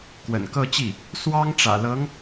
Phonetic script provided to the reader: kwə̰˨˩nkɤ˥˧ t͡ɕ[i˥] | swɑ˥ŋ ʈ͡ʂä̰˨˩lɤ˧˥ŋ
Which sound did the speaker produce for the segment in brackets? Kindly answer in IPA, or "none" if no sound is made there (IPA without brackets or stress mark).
i˥˩